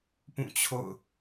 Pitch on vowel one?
falling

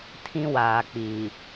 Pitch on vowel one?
high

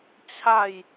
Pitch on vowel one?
falling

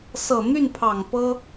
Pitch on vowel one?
low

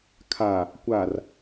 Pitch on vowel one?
low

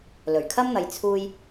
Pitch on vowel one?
low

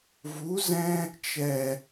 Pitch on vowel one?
rising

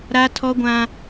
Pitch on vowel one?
high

